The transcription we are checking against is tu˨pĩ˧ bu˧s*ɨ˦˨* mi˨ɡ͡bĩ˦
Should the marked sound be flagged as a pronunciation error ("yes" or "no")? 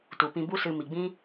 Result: yes